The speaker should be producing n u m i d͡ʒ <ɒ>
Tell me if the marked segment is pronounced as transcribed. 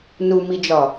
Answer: yes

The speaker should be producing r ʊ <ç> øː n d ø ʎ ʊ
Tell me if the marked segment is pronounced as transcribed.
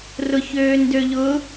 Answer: yes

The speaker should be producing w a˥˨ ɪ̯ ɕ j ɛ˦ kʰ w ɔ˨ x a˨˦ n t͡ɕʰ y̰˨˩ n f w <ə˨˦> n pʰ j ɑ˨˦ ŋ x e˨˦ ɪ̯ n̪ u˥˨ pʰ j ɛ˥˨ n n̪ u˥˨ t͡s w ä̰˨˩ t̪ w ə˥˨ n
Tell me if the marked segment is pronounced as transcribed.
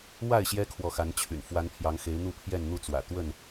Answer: no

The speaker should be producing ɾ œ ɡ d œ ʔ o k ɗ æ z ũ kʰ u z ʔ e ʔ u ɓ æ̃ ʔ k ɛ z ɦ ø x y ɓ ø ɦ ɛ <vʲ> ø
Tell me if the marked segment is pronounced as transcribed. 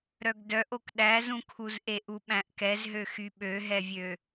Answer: yes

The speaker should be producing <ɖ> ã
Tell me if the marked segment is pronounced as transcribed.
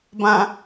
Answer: no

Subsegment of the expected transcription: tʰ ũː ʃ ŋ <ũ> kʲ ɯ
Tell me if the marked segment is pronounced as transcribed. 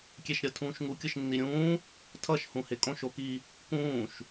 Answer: no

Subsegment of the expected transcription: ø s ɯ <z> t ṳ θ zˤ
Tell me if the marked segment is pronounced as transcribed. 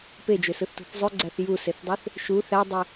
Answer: no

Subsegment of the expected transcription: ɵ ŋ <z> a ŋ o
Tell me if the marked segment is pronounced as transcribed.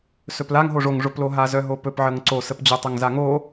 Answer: yes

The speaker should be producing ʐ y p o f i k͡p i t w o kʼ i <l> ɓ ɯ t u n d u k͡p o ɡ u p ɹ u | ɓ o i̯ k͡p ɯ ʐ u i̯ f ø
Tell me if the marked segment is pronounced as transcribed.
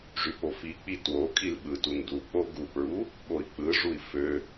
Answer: yes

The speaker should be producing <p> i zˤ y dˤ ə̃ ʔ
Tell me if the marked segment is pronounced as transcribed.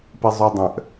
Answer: yes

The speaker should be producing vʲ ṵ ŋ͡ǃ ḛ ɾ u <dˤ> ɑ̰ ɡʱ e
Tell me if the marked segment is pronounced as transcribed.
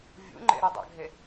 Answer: yes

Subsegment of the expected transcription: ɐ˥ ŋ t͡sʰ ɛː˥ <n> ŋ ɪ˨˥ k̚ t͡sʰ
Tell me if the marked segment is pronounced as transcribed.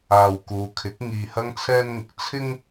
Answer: yes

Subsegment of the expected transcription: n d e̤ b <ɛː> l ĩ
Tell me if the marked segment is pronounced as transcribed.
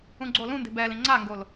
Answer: yes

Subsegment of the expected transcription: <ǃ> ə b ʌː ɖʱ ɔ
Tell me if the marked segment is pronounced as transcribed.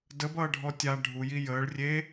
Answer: no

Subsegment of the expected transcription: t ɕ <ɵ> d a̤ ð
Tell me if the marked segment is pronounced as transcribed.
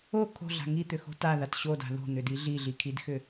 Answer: no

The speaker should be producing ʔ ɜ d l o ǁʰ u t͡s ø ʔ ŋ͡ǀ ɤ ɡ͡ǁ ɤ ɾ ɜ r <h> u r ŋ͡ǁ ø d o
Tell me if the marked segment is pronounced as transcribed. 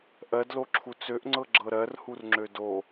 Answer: yes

